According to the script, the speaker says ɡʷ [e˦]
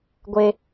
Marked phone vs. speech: correct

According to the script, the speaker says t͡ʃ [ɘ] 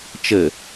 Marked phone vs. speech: correct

